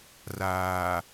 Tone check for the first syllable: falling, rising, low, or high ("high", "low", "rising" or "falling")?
low